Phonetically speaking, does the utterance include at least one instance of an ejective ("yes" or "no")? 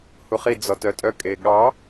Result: yes